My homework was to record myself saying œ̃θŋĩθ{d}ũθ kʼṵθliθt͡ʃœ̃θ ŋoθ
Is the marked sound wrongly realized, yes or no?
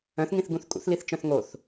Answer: yes